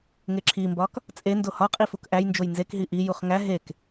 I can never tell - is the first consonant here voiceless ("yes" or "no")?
no